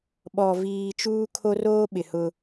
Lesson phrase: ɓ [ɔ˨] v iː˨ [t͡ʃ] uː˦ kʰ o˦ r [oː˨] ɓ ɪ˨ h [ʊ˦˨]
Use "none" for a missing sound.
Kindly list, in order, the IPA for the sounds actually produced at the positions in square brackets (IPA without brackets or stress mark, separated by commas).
ɔ˨, t͡ʃ, oː˦, ʊ˦